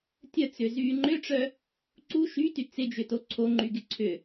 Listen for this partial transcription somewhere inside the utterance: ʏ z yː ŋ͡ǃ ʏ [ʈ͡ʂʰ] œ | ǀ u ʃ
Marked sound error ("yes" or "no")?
yes